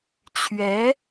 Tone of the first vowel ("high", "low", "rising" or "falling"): rising